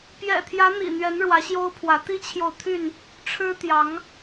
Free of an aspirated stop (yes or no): no